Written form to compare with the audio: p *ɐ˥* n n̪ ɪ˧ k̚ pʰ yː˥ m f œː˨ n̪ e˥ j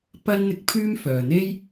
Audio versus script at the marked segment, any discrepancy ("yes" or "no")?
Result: no